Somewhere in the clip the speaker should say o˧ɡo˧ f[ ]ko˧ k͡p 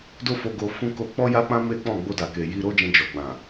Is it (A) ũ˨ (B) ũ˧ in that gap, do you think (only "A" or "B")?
B